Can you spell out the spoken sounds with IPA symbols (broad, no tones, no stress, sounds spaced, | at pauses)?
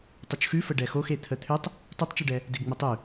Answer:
tˤ u t͡ʃ x ʉ f ə ɖ ɛ x o x e t̪ʰ ə t̪ʰ ʉ tˤ | t o tˤ t͡ʃ ʉ ɖ ɛ | d e ɡ ŋ͡m ə tˤ ʉ